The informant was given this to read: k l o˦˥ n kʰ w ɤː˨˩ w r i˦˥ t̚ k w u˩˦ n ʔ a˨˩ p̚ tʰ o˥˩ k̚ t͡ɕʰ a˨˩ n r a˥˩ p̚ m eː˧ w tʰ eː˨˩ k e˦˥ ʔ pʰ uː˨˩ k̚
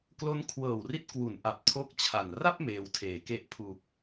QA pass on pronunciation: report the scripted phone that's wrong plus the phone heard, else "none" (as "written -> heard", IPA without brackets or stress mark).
none